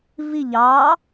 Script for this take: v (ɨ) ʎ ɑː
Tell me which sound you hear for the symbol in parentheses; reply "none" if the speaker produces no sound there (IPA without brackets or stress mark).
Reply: i